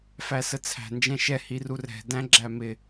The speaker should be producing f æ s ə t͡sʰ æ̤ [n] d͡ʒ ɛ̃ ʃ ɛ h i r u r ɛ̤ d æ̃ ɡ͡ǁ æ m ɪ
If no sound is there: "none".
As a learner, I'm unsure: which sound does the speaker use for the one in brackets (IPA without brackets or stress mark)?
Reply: n